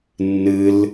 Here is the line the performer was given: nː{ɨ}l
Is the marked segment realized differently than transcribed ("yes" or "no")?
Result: no